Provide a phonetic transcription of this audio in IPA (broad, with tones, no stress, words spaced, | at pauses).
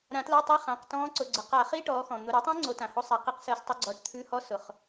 ɾã˨˩˦tla˧˥˧tˤi˧˥˧ χã˩˧˩qtɔ̃ː˦˥ǀʊ˩˧˩ɡ͡ǀə˩˧˩ qa˨˩˦χi˧˥˧ ʈɔː˨˦xɔ̃˩ n̪ʊ˩˧˩ ɾʉ˨˦tˤĩ˦˥ ŋ͡ǀo˨˦tã˩ho˦˥ sˤɛ˩˧˩qi˧˥˧qsəː˨˦s tˤo˨˦ɡ͡ǀɔː˩˧˩ʈ t̪ʰʉ˧˥˧hɔ˦˥ sʊ˩χ